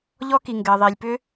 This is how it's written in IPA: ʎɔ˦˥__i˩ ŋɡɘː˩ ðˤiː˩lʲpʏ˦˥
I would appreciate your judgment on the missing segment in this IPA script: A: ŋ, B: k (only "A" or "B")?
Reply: B